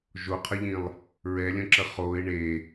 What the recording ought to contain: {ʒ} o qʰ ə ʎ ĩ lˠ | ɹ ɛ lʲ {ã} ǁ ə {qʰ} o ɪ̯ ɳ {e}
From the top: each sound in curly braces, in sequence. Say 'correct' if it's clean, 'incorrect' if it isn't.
correct, incorrect, incorrect, correct

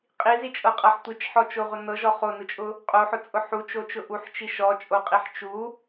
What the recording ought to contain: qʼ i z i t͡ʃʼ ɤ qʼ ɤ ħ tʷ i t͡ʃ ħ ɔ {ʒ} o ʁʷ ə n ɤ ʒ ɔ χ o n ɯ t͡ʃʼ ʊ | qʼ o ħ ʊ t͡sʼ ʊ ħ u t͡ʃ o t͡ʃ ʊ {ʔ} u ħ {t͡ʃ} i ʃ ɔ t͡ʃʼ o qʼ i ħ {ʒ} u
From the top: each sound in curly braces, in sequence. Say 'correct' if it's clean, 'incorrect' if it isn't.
incorrect, correct, correct, incorrect

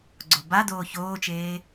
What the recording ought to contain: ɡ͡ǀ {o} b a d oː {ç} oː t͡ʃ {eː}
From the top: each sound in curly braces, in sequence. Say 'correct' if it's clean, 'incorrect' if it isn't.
correct, correct, correct

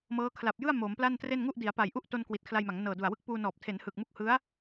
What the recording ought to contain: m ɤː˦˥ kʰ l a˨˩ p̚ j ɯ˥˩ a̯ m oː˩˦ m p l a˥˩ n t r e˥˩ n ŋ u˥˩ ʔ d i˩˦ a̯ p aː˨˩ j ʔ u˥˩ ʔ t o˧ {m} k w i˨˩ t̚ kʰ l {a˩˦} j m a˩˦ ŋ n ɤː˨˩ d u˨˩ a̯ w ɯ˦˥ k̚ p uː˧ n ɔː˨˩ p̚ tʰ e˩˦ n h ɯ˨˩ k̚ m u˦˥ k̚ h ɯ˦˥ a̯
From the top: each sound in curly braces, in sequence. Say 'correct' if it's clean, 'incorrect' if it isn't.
incorrect, incorrect

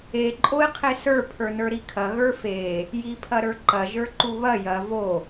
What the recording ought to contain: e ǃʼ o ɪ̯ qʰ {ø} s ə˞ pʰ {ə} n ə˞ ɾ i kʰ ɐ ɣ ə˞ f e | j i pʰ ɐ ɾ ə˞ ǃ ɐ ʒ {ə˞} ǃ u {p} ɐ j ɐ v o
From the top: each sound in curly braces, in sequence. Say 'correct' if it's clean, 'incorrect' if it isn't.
incorrect, incorrect, correct, incorrect

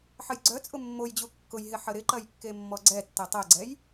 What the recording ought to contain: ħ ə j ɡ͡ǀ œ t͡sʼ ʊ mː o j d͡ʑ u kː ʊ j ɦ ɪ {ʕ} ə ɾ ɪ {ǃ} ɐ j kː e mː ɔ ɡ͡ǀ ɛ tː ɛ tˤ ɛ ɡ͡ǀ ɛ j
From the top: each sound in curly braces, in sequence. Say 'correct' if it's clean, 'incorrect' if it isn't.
incorrect, correct

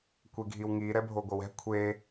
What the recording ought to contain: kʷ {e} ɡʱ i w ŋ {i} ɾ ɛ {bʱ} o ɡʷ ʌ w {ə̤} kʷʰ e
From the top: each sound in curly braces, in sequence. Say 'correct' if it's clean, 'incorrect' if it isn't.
correct, correct, correct, incorrect

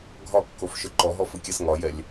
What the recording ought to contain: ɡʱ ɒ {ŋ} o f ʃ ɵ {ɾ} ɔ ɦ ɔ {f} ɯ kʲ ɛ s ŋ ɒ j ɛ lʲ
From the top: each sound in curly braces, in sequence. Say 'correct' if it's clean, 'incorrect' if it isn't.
incorrect, incorrect, correct

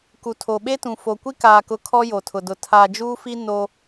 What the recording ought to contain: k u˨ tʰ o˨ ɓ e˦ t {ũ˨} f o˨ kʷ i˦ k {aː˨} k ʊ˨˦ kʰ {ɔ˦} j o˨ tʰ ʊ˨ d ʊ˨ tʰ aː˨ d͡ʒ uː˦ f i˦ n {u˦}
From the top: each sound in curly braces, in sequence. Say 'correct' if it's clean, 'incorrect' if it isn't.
correct, correct, correct, incorrect

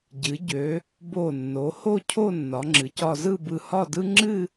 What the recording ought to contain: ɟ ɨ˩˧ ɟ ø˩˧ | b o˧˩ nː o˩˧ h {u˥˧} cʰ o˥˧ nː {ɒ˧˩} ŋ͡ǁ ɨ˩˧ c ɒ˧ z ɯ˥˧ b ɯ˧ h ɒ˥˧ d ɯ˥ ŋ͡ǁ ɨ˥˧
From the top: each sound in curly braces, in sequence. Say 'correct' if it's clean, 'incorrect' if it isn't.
incorrect, incorrect

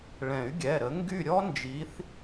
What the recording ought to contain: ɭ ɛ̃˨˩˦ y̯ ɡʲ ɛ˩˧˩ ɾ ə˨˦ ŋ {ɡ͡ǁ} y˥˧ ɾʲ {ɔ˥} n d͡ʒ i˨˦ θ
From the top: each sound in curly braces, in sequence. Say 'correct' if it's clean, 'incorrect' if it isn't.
incorrect, correct

